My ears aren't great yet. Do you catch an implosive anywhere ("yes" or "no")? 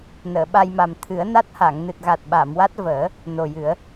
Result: yes